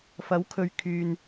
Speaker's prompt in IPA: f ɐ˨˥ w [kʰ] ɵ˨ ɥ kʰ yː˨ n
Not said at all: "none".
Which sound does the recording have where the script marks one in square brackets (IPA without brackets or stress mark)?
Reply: kʰ